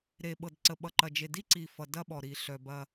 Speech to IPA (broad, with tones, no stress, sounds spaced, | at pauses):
ɾ e˨ ɓ ɤ˨ d ǀ ə˨ ɓ ʌ˨ ǃ ɐ˨ d͡ʒ e˨ d i˦ ǀ i˨ f ʌ˨ d ɐ˦ ɓ ɔ˨ ɾ i˨ ɬ œ˨ b ɐ˦